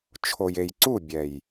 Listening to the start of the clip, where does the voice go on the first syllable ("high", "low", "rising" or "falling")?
low